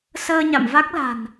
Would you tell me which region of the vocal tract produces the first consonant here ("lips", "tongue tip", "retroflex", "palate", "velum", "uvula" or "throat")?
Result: tongue tip